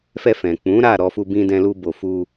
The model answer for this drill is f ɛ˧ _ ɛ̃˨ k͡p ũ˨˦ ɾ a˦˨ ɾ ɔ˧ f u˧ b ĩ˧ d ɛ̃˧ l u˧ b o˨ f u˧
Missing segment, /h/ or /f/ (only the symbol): f